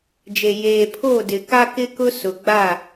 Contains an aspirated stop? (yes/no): yes